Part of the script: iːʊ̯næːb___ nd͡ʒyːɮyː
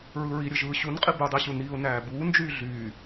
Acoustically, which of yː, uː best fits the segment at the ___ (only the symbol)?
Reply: uː